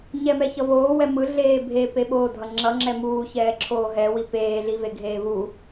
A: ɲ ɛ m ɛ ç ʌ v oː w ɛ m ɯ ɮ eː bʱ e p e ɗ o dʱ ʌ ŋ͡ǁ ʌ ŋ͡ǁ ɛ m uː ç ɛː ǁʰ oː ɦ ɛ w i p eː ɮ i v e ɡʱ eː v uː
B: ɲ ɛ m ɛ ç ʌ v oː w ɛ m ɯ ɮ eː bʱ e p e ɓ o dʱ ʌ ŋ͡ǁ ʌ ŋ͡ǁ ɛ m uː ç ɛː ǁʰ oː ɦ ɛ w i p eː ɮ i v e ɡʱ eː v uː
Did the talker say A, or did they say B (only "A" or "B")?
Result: B